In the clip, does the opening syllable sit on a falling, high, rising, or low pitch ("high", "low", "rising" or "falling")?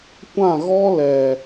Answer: falling